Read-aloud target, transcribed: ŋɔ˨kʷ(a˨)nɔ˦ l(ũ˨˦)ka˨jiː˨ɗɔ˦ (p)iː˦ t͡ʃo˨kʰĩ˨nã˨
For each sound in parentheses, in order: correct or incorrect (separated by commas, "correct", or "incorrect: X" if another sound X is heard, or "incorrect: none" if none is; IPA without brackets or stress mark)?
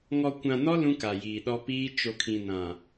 incorrect: ã˨, incorrect: ũ˦, correct